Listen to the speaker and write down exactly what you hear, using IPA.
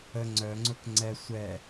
ə ŋ͡ǀ œ ŋ͡ǀ ʊ k ŋ͡ǀ ɛ sʷ ɛ

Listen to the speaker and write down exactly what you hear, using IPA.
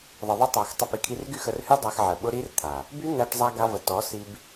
ðˤ ə˨ ðˤ ʊ˧ tˤ ɑ˨ x tˤ ə˧ p i˨ kʰ i˧ r ɡ y˦˨ x ə˨ r h y˧ dˤ a˧ x ʕ ə˨ ɓ ʊ˦ ɾ i˦ r t̪ʰ a˨ | b y˦ n̪ æ˧ ʈ zˤ a˧ ɡ a˧ v ə˨ t ɔ˨˦ s i˧ b

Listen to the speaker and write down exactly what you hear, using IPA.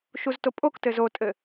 ʃ u z t o pʼ o k t ɘ z o tʼ ɘ

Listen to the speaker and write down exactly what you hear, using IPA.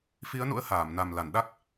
f i˨˦ ə̯ n ṵ˧˥ ə̯ h aː˧˩ m n a˨˩ m l a˧˩ n ɗ a˦˥ k̚

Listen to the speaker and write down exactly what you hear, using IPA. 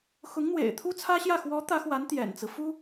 x ʊ˧˥ ŋ n̪ w ḛ˨˩ ɪ̯ t̪ʰ u˥ t͡sʰ ä˥ ɕ j ä˥˩ x w ɔ˧˥ t̪ ä˧˥ x w a˧˥ n t̪ j ɛ̰˨˩ n t͡s ɹ̩˦ f u˥

